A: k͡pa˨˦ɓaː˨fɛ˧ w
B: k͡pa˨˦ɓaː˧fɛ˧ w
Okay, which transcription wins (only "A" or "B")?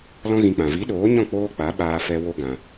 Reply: B